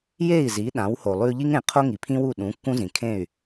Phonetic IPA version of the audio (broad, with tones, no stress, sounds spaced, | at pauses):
j e˥˩ i̯ z i˩˥ ɗ ã˩˥ w h o˩ lˠ ʉ˧ ʎ i˥ ŋ ẽ˩˥ qʰ o˥ ŋ i˩ pʰ ĩ˥ w u˥˩ ɗ ũ˩˥ kː ũ˥ z ĩ˩ kʰ ẽ˥˩ y̯